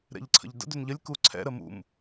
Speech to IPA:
ɾ ɛ̰ ʎ ǀʰ ə̰ ʎ d ə̰ d ʏ n ʎ ə lʲ k u ǀʰ ɛ̰ ɾ ə m ṵ m

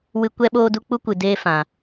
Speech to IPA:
w ɨ˦ kʷ ɛ˦ ɓ oː˦ d u˦ k͡p u˦ kʷ ɨ˧ d eː˦ f ã˧

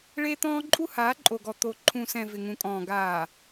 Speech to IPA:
ɭ e˦ t̪ ɔ̃ː˦ ǃʼ u˦ h aː˨˦ ǃʼ o˨ ɡ ɔ˨ t̪ o˨ ǃʰ ũ˨ s ɛ̃˨ v ɪ˨ ŋ ũ˨ kʼ ɔ̃ː˨ ɡ aː˨

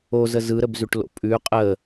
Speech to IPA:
o z ə z ɯ ɾ ə b z ʉ ʈ l o̰ pʼ ʉ qʼ ə

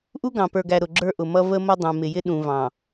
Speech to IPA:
ʔ u˦ ɡ ɑ̃˨ p ə˞˨ ɡ æ˨ ɾ ʊ˨ ɡ͡ǁ ə˞˦ ʔ ʊ˨ m ʌ˦ v ə˦ m ʌ˦ dˤ ũ˨ m ɪ˨ j ɪ˦ ɗ ũ˨ v ɑ̃˨

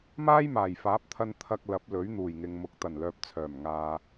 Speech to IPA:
m aː˥ j m aː˨˩ j f aː˨˥ p̚ t̪ʰ ɐ˧ n t̪ʰ ɐ˧ k̚ l ɐ˨˥ p̚ l ɵ˨˥ ɥ n̪ uː˨˩ j ŋ ɪ˨ ŋ m ʊ˨˥ k̚ t̪ ɐ˨˩ n l œː˨ p̚ t͡sʰ œː˨˩ m ŋ aː˨

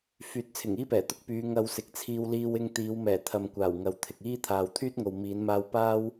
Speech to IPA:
f yː˨˥ t̚ t͡sʰ ɪ˨˩ ŋ iː˥ p ɛː˨˩ t̪ ʊ˥ k̚ p yː˨˧ ŋ ɐ˧ w s ɪ˨˥ k̚ t͡sʰ iː˧ w l iː˧ w ɪ˧ ŋ t̪ iː˨˧ w m ɛː˨˩ t̪ʰ ɐ˨ m kʷ aː˨˩ w ŋ ɐ˨ w t̪ʰ ɪ˨ k̚ iː˥ t̪ʰ aː˨ w t̪ʰ yː˥ t̚ ŋ o˨ w m iː˨˧ n m aː˧ w p aː˥ w

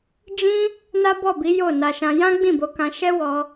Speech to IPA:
d͡ʒ ĩ˦ | n a˦ b ɔ˦˨ b i˨˦ j o˦˨ n a˧ ʃ ã˧ j ã˦ ɡ͡b ĩ˦˨ b o˨˦ k ã˧ ʃ ɛ˦ w ɔ˧

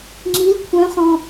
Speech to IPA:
ŋ͡ǁ i l kʷʰ œ̃ χ ɔ̃

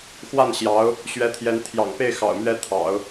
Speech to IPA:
x w a˥˩ n ɕ j ɑ˧˥ ʊ̯ | ɕ ɥ ɛ˧˥ t̪ʰ j ɛ˧˥ n t̪ʰ j ɑ̰˨˩ ŋ p e˥˩ ɪ̯ x ɑ̰˨˩ ʊ̯ m ɥ ɛ˥ t̪ʰ ɑ̰˨˩˦ ʊ̯

